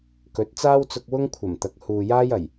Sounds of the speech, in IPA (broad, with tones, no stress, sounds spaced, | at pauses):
k ɵ˨˥ t̚ t͡s aː˥ w t͡s ʊ˧ k̚ w ʊ˥ ŋ kʷʰ ɐ˨˩ m t̪ ɐ˨˥ k̚ h uː˨ j aː˥ j ɐ˨˩ j